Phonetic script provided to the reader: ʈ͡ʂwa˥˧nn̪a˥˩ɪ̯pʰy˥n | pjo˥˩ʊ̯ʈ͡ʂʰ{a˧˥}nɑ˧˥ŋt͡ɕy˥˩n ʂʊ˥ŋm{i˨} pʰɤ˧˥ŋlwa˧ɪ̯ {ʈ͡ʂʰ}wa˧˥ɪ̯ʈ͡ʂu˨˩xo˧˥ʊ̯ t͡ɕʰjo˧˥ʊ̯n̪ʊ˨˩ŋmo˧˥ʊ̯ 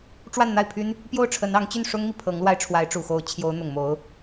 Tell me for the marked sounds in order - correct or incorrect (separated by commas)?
incorrect, correct, correct